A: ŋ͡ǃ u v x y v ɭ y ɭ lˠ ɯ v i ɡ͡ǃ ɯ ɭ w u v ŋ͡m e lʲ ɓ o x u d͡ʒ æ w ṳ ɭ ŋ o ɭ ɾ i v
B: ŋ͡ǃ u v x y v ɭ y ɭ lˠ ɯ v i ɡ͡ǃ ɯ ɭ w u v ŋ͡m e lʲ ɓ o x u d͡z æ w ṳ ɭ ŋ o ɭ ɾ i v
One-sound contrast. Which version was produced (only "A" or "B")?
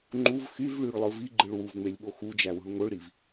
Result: A